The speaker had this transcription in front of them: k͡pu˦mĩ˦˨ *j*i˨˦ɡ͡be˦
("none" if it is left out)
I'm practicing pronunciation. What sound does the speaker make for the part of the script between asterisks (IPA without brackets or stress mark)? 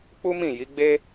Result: j